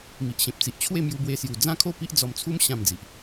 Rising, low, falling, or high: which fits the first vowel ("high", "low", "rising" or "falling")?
low